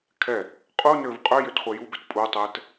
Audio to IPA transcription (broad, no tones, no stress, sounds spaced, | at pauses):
kʰ ɛ | qʼ u n ø v qʼ ø j ø t χʷ ɛ j u b ø t pʼ u tˤ ɛ t